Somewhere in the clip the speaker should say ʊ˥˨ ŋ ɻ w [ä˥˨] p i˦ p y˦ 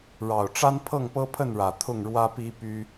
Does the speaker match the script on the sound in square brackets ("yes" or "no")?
no